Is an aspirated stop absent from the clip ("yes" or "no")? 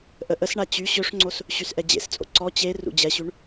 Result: yes